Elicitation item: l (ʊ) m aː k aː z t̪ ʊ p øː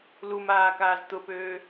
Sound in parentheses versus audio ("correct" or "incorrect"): incorrect